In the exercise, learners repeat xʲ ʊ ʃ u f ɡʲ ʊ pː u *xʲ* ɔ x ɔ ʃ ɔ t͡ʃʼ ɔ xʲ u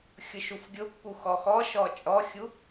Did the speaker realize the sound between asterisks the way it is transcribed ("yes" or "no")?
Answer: no